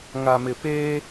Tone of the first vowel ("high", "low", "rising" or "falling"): low